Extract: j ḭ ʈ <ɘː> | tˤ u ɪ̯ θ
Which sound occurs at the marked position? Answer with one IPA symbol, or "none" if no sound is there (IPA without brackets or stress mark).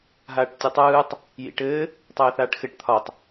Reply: ɘː